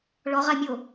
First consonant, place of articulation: retroflex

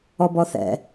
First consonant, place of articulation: labial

